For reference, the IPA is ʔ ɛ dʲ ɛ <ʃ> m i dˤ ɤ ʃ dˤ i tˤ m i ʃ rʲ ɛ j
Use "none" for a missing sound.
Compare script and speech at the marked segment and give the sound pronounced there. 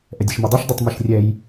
ʃ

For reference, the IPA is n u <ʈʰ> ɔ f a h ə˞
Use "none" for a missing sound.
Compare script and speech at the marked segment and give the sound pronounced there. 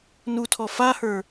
tʰ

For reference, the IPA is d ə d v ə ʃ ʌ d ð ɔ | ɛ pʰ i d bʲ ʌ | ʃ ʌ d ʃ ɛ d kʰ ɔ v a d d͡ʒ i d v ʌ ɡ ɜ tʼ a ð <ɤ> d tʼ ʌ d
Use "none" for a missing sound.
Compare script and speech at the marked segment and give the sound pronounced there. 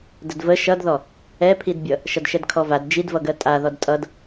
ɔ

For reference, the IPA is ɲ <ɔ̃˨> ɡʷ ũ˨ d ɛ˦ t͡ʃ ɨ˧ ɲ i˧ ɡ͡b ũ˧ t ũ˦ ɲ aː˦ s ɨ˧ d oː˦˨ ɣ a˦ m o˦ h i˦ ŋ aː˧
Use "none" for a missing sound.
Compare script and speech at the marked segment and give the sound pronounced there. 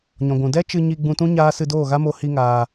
ɔ̃˨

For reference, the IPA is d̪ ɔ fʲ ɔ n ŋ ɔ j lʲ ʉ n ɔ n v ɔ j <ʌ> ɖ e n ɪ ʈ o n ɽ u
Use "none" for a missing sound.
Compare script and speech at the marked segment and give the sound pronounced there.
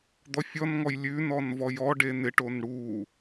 ɔ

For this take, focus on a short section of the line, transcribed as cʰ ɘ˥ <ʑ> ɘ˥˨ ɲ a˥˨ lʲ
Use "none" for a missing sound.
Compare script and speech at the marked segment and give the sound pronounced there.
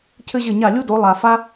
ʑ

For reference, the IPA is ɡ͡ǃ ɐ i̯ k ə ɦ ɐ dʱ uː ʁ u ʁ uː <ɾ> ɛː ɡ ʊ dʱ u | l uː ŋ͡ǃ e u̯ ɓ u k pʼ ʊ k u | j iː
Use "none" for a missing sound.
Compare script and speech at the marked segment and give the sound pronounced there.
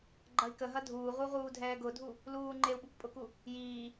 dʱ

